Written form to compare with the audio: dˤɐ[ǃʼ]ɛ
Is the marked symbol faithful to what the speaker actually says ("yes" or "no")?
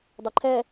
no